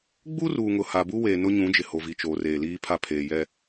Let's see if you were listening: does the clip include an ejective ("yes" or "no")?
no